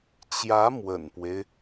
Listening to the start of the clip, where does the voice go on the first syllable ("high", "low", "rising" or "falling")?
rising